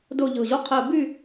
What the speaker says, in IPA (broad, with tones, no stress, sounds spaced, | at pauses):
d ʊː˦˨ ʎ ɯː˨˩ ʑ o˦˥ qʰ ɘː˦˨ b y˦˨